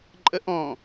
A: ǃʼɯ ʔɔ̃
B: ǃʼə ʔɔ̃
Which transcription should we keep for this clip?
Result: B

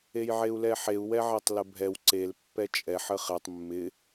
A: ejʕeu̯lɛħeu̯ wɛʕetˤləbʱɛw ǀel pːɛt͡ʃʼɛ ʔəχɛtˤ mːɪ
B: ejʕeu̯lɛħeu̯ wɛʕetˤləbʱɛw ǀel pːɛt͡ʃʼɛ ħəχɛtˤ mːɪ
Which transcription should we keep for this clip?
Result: B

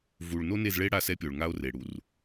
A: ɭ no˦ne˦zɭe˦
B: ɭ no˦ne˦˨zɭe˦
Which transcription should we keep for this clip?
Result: B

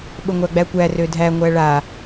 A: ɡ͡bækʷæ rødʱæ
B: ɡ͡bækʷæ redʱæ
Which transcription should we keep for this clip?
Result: A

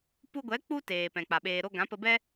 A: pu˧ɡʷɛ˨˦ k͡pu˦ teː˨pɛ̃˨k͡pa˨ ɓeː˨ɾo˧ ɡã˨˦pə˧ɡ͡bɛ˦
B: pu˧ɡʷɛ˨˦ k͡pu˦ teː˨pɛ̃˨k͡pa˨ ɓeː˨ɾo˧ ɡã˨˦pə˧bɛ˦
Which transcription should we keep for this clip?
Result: B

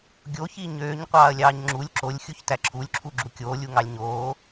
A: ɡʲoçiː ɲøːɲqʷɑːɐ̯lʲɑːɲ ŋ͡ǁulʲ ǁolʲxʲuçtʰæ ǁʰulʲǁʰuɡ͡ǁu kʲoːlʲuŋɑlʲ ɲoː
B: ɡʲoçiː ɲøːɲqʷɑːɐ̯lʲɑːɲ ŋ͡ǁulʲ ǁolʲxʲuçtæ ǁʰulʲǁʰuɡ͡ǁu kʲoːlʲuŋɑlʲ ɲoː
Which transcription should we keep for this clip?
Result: B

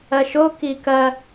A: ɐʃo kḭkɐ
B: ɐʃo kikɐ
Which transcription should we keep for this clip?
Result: B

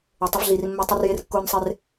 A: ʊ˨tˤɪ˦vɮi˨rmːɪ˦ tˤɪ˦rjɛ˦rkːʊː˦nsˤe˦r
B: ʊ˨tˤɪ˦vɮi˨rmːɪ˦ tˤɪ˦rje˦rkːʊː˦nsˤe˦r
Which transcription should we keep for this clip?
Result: B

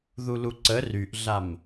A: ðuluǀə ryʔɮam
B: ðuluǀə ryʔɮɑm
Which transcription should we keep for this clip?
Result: A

